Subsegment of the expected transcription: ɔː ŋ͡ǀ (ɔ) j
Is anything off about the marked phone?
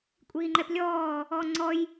no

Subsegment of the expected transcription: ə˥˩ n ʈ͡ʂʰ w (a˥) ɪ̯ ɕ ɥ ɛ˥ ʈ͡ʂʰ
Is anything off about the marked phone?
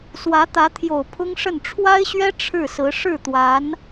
no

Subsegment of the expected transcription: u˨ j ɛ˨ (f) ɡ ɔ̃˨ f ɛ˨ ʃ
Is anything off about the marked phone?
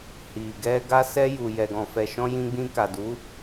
yes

